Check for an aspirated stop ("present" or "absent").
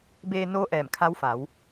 present